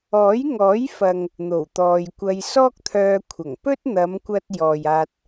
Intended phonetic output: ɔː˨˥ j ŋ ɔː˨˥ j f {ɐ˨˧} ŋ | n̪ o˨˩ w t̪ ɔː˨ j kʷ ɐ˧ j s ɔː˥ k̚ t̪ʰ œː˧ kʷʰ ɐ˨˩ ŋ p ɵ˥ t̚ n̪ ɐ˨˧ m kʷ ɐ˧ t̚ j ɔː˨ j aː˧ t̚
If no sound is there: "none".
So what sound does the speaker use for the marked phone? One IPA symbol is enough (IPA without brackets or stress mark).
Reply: ɐ˨